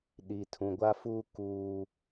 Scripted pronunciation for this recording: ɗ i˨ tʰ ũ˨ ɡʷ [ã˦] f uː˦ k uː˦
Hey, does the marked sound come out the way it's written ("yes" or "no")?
no